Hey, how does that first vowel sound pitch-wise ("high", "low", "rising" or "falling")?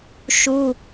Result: high